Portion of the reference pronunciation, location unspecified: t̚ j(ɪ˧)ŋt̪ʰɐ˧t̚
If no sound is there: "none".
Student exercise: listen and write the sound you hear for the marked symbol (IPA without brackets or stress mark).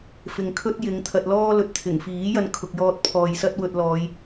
ɪ˨˧